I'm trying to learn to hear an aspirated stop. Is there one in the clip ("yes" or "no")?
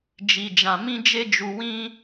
no